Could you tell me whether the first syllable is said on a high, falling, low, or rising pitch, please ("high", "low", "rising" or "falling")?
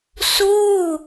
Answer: falling